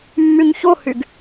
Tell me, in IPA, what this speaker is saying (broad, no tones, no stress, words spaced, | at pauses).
mːyɲçohyɡ